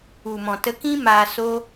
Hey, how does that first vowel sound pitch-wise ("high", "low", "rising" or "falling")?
low